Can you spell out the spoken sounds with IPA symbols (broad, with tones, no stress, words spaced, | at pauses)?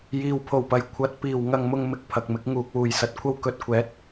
jiː˧wpʰo˨wpɐ˨˧j kʷʰɐ˨˥t̚ piː˨wŋɐ˧ŋmʊ˧ŋmɪ˧k̚ pʰɐ˨k̚mɪ˨˥k̚ ŋuː˨k̚wuː˨jsɐ˨t̚kʷʰɐ˥w kɵ˧t̚kʷʰɛː˨˥t̚